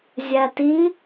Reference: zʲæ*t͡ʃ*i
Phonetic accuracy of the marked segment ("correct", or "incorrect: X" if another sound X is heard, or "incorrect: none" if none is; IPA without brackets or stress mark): incorrect: t